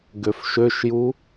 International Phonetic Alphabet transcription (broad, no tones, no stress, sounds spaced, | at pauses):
ɡ ø f ʃ ø ʃ j u